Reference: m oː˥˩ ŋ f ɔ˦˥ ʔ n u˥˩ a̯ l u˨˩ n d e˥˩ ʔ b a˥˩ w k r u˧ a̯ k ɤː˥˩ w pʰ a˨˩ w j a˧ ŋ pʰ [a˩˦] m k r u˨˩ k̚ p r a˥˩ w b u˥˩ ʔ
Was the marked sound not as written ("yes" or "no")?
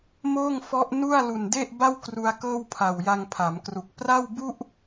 no